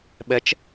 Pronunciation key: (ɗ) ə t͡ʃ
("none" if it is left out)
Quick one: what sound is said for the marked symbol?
ɓ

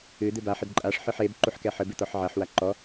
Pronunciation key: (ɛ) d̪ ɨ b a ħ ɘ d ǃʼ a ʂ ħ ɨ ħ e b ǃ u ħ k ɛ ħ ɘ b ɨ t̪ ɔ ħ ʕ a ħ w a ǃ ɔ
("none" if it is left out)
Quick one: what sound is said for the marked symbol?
ɨ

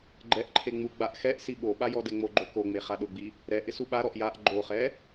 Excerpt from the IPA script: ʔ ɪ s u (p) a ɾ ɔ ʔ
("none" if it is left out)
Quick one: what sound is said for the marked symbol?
ɓ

